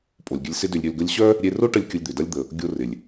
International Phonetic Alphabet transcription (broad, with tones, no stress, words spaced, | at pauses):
pʼo˨lʲɡʲə˧lʲ sɪ˦dʏ˧lʲɾʲø˧lɡə˦lʲ ɕœ˦ | ɾʲe˧ro˦ʈə˧lʲ kʲʊ˧lʲd̪ʏ˨dɐ˦lʲ d̪ə˨ | ɡʲo˧rɪ˨lʲ